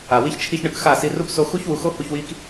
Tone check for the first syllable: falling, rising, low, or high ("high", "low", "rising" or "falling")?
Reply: low